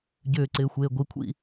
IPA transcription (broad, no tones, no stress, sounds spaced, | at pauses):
ɟ ʏː ǀ ɪː xʷ eː ɡʷ i kʷʰ ḭ